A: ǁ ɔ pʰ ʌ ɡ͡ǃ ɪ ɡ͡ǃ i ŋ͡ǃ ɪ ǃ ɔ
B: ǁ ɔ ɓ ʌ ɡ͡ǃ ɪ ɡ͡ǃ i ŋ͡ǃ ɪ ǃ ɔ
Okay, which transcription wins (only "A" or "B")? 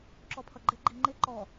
A